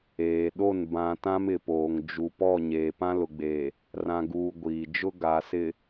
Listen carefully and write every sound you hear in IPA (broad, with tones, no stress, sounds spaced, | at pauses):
eː˨ ɗ o˦˨ n b ã˨ t ã˦ m ɪ˨ p oː˨ ŋ d͡ʒ u˨ p ɔ˦˨ ɲ eː˨ p ã˦ l ʊ˨ ɡ͡b eː˨ | r ã˨ ɡ uː˨ ɡʷ iː˨ d͡ʒ ʊ˦ ɡ a˨ s ɪ˨